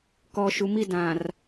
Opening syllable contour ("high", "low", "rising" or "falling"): low